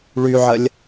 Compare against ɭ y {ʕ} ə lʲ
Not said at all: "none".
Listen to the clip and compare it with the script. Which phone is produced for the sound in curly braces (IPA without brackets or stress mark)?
ʕ